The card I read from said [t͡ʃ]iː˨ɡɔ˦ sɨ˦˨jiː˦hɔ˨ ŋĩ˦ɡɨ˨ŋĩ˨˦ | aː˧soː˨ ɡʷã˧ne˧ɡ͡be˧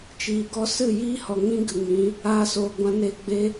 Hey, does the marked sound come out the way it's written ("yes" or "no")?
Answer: yes